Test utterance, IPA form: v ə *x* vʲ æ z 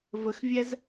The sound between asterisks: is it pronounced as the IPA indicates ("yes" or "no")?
yes